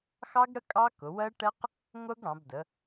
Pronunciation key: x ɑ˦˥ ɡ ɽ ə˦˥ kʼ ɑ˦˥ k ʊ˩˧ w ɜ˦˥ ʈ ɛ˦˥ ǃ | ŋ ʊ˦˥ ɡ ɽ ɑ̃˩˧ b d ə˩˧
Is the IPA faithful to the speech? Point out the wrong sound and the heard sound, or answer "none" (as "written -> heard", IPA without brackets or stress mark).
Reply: ǃ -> q